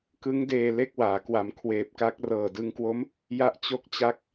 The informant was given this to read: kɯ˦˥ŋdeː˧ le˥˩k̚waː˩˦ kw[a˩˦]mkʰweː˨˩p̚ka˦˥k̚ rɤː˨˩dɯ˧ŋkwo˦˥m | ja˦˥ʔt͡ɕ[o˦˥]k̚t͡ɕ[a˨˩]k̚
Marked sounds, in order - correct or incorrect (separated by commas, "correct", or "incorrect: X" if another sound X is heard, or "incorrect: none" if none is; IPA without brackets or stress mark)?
correct, correct, incorrect: a˦˥